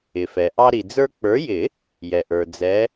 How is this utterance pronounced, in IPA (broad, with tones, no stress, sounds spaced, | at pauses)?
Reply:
ɪ˩ f ɛ˩ ʔ ɑ˦ ɾ i˩ d͡z ə˞˦ k͡p ə˞˨˦ j ɪ˨˩˦ | j ɛ˩ ʔ ə˞˩ d͡z ɛ˨˦